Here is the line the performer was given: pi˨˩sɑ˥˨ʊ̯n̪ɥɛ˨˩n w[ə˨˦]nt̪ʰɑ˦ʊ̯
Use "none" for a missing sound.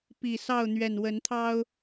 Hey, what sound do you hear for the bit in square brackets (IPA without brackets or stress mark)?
ə˨˦